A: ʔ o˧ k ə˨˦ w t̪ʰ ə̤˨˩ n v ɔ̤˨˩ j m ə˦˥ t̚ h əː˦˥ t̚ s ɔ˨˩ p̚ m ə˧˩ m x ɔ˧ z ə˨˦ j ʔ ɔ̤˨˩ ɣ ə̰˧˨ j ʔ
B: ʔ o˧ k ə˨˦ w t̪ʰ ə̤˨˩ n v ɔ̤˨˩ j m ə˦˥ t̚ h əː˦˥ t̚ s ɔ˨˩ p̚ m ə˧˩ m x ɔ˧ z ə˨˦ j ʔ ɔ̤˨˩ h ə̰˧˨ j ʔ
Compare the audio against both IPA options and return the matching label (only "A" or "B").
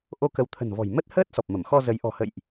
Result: B